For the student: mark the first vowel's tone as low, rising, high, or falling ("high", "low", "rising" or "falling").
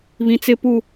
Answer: low